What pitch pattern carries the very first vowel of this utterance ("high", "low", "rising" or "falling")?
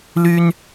high